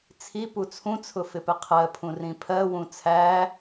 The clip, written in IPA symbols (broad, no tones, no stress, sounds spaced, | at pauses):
t͡sʰ i p u t͡sʰ ũ t͡sʰ ʊ f ɪ p ɪ qʰ ɜ pʰ ũ r ĩ pʰ ɜ w ũ t͡sʰ æ